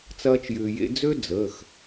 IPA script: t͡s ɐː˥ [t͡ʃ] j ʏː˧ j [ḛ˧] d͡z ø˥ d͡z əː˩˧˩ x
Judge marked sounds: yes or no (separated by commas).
yes, no